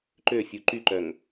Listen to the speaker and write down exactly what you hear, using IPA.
ǃ ø fʲ u ǃ y ǃ œ ŋ

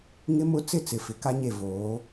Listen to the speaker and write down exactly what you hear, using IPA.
ŋ ɪ˦ m ʊ˦ t͡s ɪ˦˨ t͡s ɪ˨˦ f ɪ˨ k a˦ ɲ e˦˨ v oː˨˦

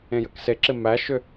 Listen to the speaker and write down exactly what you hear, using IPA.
ẽ j ə k s e ǁ ɪ m æ ʃ ʏ

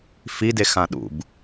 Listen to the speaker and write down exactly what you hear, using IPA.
f i d e x ã ɗ ṵ b

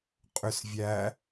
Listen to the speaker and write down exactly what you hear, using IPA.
qʼ ʏ s vʲ æ

